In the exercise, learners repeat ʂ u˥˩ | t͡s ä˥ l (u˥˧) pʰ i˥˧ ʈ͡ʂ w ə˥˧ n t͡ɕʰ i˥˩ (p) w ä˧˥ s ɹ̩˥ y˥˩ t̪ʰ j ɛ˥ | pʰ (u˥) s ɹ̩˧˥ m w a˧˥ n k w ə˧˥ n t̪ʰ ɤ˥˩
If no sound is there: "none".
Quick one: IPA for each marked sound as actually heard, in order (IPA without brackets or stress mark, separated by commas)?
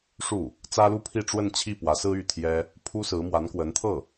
u˥, p, u˥